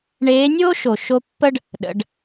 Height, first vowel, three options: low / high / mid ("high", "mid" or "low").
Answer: mid